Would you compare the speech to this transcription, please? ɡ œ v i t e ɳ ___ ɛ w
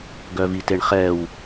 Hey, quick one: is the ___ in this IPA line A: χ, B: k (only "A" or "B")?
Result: A